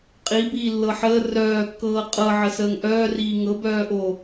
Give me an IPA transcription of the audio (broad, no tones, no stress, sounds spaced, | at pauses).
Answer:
qʼ i b iː lː ɤ ħ əː r œː kː ɤː qʼ ɤ ʕ ə s əː ŋ ʔ œː r iː ŋ ɤ b œː ʔ o